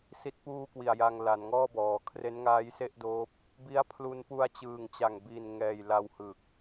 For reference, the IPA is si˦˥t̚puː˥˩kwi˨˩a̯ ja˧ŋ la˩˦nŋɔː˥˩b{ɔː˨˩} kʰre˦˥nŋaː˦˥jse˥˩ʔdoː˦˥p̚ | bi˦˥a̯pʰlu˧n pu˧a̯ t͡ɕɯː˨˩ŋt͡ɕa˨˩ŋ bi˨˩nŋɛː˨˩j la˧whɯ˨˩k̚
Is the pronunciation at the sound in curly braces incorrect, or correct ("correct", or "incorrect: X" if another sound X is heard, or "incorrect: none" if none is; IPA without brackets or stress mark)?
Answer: incorrect: ɔː˩˦